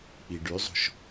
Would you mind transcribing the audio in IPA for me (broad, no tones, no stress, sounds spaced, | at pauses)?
k͡p i ɖ y zˤ o̤ ʃ